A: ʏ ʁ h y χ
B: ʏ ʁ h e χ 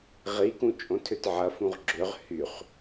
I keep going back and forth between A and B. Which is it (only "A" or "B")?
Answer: A